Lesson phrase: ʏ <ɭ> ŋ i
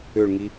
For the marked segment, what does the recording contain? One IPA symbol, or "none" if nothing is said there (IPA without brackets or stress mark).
ɭ